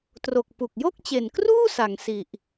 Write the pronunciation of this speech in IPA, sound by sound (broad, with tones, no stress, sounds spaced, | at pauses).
t r o˨˩ k̚ p u˨˩ k̚ j o˥˩ k̚ t͡ɕ e˨˩ n k r uː˥˩ s a˩˦ ŋ s i˨˩ ʔ